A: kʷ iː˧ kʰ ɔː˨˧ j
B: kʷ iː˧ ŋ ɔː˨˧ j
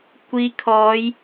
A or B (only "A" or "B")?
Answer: A